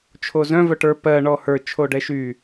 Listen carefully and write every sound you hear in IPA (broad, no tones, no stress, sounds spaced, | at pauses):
t͡ʃʰ o z œ̃ v œ ʈ ə˞ p ɜ ɳ ɔ h ə˞ t͡ʃʰ o ɖ ɛ ʃ y